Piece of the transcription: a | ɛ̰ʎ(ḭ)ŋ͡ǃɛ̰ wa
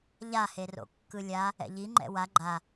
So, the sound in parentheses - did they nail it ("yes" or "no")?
no